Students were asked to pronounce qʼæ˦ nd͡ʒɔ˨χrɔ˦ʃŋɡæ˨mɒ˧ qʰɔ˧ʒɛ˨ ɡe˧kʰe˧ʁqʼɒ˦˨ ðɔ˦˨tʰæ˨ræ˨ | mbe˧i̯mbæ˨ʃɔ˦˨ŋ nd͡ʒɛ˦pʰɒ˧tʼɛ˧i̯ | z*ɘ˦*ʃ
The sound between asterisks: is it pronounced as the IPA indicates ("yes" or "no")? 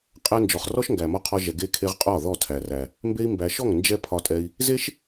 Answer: no